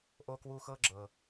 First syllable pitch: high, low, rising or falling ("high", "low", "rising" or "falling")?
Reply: high